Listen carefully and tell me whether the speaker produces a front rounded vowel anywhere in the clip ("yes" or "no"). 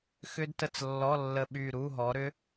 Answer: yes